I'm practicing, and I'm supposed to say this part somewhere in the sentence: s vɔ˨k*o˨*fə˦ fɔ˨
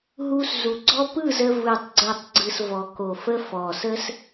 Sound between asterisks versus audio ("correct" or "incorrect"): correct